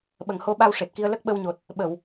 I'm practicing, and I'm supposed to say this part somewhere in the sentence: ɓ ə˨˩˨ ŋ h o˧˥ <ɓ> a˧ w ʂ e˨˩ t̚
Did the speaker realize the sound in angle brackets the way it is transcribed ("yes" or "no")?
yes